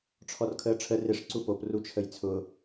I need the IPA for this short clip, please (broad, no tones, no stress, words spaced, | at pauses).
ʈ͡ʂʰɔrkʰəːʈ͡ʂʰə rɪʂ ǀupop rut͡ʃʰəjt͡sʰʊ